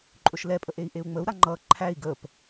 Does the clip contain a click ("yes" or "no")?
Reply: yes